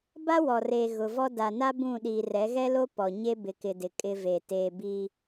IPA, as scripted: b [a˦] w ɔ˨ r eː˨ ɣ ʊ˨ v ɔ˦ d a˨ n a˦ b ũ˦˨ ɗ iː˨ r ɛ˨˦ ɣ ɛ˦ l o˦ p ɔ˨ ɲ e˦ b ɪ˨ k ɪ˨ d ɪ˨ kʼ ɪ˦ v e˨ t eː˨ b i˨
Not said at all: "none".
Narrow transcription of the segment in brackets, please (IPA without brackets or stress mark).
a˦